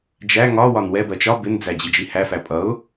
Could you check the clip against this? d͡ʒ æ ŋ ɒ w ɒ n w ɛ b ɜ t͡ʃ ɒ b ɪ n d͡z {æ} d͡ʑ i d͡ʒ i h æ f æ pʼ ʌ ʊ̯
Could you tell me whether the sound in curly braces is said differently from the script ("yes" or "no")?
no